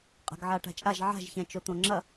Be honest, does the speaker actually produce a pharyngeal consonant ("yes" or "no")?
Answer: yes